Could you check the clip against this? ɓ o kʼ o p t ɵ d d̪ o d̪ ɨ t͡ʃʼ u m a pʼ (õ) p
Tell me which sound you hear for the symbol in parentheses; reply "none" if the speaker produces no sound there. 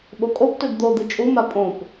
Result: õ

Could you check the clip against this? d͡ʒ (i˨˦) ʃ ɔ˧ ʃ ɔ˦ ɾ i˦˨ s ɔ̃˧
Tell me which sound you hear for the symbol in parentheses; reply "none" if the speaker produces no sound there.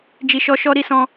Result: i˨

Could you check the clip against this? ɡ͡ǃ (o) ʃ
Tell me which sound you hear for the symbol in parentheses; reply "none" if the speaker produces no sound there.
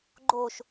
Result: o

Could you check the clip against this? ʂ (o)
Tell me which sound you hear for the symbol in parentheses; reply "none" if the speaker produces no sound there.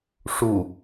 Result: u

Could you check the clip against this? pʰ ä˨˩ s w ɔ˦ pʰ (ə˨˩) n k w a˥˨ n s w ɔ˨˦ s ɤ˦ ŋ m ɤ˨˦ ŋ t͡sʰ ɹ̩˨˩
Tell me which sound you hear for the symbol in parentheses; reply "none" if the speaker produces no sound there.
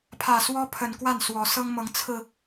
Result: ə˨˩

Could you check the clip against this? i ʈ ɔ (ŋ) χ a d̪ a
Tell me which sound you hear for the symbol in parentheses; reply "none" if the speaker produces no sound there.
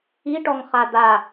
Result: ŋ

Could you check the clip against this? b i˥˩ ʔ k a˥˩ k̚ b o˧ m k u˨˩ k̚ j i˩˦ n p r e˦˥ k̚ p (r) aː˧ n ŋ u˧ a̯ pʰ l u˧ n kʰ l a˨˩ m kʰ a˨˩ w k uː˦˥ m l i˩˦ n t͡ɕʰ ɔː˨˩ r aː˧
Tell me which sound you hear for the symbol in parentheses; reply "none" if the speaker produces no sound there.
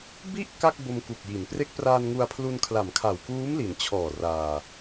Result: r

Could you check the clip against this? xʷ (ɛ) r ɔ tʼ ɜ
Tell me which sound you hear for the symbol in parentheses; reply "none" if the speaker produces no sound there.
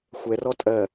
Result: ɛ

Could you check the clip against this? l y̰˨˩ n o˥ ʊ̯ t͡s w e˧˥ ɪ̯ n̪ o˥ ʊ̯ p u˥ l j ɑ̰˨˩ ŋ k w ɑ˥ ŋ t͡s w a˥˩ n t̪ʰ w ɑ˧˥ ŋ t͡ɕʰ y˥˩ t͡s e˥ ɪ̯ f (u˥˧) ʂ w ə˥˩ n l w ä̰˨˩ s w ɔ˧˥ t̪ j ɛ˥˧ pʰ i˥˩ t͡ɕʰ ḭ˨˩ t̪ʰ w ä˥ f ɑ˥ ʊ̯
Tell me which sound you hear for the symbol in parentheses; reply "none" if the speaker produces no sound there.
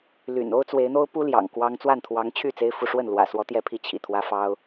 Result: u˥˧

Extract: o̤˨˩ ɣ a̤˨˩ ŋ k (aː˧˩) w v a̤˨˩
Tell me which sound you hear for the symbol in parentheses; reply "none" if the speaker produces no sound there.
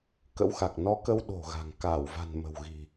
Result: aː˧˩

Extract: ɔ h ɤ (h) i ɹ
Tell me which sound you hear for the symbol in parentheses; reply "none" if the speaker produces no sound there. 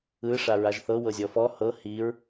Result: h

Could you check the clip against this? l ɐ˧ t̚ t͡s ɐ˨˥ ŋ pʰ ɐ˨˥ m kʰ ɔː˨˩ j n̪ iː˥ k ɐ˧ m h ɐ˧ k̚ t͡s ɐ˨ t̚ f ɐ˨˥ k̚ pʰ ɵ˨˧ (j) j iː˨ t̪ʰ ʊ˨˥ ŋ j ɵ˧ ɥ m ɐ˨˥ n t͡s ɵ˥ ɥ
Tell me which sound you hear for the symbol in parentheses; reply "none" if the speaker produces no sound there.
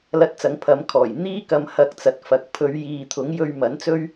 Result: ɥ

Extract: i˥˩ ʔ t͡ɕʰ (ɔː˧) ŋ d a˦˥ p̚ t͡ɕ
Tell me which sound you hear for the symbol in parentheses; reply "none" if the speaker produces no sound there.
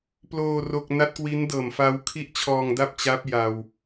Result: ɔː˧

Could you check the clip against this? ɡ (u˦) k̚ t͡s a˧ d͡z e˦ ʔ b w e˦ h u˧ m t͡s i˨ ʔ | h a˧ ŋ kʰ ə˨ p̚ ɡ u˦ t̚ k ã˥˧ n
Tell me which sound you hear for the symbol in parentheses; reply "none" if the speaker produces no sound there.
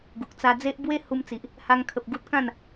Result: u˨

